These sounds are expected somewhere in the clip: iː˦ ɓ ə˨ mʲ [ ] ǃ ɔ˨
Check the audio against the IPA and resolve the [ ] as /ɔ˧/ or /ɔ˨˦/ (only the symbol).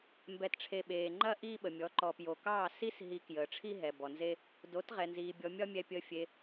ɔ˨˦